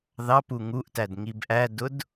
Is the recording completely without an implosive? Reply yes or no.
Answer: yes